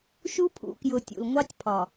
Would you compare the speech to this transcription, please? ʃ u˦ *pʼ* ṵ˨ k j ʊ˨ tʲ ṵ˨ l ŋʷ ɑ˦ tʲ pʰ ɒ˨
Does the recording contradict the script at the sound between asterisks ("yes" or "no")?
yes